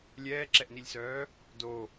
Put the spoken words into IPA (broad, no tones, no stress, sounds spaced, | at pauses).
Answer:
lʲ ɛː ǁ ɛ ʔ n i lʲ s œː | d o